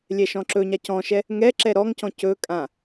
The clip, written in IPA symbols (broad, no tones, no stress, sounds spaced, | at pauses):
lʲ ɛ ʃ ɔ̃ ǁ ɵ ɲ a c ɔ̃ ʃ ɛ | ŋ ɛ ǁ ɛ ɾ ɔ ŋ c ɔ̃ c ɵ kʼ ã